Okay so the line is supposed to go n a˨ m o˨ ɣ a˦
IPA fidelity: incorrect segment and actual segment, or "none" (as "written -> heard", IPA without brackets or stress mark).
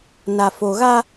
m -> f